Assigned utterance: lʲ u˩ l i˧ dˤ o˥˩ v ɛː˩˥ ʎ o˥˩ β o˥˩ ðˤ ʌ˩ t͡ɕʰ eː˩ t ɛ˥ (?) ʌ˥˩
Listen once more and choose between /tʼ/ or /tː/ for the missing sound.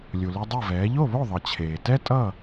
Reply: tʼ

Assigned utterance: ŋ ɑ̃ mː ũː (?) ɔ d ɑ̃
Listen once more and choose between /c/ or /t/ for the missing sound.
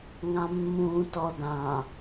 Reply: t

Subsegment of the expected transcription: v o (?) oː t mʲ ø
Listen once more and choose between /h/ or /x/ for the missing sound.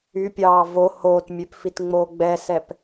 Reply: h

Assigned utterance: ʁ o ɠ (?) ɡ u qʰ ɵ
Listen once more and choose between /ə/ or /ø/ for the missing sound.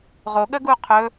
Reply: ə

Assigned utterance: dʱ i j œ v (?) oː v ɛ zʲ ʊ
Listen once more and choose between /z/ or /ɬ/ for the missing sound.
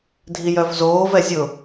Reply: z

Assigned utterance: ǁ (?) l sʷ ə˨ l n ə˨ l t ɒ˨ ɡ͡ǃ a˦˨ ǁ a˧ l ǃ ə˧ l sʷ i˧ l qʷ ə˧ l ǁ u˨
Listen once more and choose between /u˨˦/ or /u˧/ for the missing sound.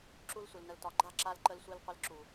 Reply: u˧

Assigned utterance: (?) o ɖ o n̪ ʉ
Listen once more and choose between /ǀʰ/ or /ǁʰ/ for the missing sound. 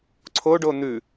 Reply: ǀʰ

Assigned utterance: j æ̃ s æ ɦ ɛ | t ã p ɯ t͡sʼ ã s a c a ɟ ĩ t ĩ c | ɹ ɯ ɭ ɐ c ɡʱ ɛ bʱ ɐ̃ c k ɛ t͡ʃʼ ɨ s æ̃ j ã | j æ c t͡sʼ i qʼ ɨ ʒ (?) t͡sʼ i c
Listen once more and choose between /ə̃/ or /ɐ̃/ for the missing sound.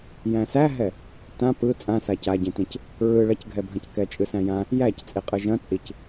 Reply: ɐ̃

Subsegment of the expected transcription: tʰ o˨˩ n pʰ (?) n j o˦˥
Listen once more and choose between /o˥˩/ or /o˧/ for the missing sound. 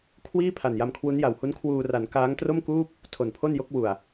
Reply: o˥˩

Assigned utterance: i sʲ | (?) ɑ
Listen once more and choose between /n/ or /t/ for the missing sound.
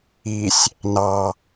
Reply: n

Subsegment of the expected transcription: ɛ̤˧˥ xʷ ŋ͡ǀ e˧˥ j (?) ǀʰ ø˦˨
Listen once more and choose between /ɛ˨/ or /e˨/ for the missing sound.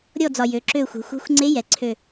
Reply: ɛ˨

